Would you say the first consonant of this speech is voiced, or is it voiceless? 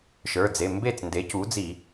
voiceless